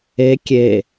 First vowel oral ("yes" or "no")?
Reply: yes